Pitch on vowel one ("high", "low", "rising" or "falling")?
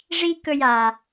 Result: high